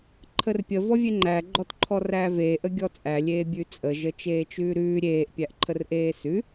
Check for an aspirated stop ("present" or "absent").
present